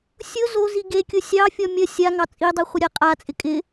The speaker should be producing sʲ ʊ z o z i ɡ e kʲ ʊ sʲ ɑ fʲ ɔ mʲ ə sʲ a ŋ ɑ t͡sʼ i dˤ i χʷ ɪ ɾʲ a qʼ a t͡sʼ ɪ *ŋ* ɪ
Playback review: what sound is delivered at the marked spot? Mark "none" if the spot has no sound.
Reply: kʼ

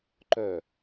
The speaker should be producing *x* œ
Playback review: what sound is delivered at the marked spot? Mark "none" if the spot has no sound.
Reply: ǃ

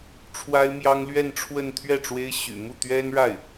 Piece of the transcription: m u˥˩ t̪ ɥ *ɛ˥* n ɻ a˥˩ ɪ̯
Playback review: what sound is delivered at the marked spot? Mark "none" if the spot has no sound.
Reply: ɛ˥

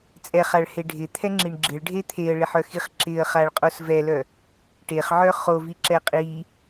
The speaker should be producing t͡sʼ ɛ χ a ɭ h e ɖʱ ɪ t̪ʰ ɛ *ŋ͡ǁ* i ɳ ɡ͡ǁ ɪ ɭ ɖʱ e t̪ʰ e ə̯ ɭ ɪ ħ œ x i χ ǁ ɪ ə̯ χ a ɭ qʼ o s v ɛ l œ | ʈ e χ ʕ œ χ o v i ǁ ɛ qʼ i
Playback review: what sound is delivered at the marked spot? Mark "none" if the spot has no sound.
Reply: ŋ͡ǁ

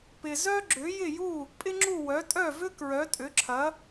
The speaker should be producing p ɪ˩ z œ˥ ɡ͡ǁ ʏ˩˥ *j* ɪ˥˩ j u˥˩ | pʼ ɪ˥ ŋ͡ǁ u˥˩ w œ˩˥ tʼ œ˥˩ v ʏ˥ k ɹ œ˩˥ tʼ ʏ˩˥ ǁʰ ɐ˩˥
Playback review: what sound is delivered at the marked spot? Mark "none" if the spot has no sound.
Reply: j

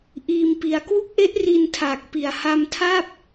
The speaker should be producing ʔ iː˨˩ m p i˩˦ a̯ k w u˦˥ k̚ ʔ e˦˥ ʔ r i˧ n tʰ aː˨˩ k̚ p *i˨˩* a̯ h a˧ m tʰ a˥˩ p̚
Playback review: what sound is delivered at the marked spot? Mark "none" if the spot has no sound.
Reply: i˨˩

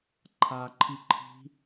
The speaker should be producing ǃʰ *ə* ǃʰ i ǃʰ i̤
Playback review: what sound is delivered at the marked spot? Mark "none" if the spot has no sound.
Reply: a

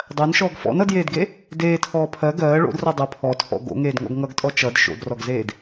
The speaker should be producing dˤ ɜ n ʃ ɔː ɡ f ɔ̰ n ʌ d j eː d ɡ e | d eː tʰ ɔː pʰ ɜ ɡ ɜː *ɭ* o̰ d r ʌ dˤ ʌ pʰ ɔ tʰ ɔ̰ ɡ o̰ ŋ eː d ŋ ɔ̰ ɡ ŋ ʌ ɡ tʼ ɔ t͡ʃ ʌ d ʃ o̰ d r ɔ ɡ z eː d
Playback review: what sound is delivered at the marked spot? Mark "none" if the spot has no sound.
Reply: ɭ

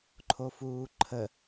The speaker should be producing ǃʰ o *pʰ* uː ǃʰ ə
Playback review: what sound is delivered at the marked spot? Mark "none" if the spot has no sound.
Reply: f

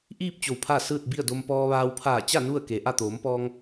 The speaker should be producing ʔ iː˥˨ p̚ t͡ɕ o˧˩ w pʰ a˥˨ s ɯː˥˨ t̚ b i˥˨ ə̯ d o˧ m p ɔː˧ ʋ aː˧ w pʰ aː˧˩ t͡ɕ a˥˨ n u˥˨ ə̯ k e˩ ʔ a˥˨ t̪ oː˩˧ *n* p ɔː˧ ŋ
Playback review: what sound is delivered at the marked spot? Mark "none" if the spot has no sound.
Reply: m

